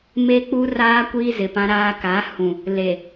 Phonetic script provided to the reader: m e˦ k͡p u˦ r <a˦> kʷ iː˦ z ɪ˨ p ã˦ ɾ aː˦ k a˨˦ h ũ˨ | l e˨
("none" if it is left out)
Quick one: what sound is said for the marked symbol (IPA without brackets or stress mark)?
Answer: aː˦